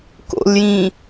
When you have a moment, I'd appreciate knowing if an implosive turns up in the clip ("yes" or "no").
no